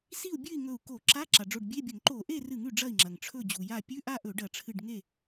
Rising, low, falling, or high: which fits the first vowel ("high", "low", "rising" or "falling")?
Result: falling